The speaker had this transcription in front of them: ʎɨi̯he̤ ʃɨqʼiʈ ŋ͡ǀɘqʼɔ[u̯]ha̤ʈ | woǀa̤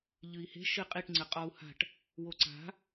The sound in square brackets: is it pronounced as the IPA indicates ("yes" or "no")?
yes